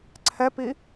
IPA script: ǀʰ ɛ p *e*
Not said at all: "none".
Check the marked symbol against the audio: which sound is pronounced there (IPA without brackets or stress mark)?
i